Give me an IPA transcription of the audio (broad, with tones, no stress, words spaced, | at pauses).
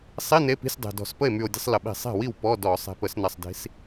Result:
sˤi˧˥˧ ne˧˥˧pi̤˧˥˧sʲdˤe̤˨˩dɔ̤˧˩˧s pə˥˩e̯my˨˩o̯dʲə̤˧˥˧sˤ lə˨˩ɓi̤˧˩˧ sˤe̤˥˩wi˥˩w pɔ˧˥˧dɔ˧˩˧ sˤe̤˨˩pə˧˩˧snɐ˨˩sˤdi̤˨˦s